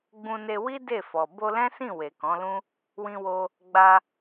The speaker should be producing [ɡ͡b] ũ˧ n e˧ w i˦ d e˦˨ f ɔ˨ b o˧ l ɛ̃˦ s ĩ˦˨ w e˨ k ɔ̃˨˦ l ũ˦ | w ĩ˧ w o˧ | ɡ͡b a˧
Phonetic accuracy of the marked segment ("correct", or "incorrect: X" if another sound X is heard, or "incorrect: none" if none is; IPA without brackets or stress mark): correct